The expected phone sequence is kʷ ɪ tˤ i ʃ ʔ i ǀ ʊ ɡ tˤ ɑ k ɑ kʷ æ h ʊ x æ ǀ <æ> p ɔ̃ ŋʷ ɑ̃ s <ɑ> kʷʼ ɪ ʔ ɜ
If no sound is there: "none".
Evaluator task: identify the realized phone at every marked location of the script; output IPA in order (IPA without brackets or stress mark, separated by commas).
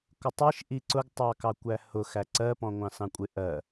ɜ, ɑ̃